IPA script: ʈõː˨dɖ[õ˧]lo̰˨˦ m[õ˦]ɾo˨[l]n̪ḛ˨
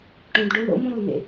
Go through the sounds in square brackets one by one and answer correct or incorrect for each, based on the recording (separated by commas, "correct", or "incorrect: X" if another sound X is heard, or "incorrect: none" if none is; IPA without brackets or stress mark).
incorrect: o˧, correct, correct